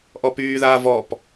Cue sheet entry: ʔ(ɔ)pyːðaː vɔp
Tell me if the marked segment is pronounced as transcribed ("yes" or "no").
yes